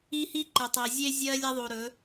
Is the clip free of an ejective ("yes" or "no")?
yes